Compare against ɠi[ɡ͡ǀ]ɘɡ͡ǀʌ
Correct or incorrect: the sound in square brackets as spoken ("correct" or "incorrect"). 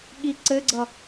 incorrect